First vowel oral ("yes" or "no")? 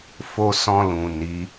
yes